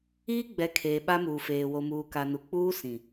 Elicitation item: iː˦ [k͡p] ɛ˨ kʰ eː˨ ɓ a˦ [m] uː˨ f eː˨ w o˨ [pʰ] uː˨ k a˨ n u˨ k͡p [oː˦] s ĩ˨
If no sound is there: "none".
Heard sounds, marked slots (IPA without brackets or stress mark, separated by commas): ɡ͡b, m, m, uː˦